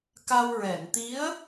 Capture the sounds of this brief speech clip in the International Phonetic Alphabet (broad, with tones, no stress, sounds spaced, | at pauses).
k a˧ w ɹ ɛ˨˩˨ n t̪ i˧˥ ə̯